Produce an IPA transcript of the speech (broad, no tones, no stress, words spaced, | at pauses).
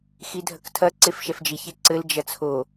xidʱɐktʰɐ ǀefʃɛfd͡ʒiç eǀɘl d͡ʒɐt͡sʰo